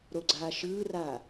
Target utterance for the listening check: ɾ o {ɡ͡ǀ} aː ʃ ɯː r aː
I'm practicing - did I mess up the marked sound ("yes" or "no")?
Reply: no